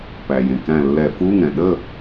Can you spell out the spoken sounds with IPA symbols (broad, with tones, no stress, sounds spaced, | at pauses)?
p æ˩ j ẽ˩ k æ̃˧˩ lː ɛ˧˩˧ f u˧˥˧ ŋ ɛ̃˩ ɗ ə˥˨